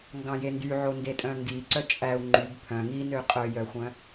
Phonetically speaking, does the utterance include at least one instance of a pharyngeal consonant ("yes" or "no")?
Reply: yes